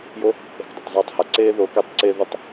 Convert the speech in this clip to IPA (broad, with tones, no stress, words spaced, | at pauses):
jo˦ | e̤˧kdˤɘ˨tˤ zˤaː˧tˤha˨ǀeː˦ ðo˨˦ke˧tˤ ǀe˦ðʏ˦tˤ